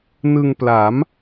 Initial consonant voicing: voiced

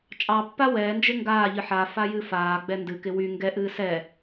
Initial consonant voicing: voiceless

